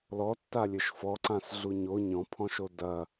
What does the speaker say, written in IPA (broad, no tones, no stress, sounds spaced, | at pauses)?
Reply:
l ɔ tː a lʲ ɘ ʃ f ɔ ǀ ã s ɮ u ɲ o ɲ ɔ̃ pʰ ɔ̃ ʃ o d ɐ